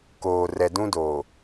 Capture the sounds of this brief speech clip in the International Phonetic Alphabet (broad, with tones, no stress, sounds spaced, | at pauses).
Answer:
k oː˨ r ɛ˨ d ũ˦ d oː˨